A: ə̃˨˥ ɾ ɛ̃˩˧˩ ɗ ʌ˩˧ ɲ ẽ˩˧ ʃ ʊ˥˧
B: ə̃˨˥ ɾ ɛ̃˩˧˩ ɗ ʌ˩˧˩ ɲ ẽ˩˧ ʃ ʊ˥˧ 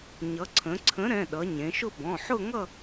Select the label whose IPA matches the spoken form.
A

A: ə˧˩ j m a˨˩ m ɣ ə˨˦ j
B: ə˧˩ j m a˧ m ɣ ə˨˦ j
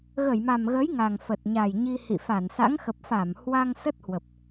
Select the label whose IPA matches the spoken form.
A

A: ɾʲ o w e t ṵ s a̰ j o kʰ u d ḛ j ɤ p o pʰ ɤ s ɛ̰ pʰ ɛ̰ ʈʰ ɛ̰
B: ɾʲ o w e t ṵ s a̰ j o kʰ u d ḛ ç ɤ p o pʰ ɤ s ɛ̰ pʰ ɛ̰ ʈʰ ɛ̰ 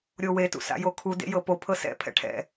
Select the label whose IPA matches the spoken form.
A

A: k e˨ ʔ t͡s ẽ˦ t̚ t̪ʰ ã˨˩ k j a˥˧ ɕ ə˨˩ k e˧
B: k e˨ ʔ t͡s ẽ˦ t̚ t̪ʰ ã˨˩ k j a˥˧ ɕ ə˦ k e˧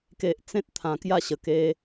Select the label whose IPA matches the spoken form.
A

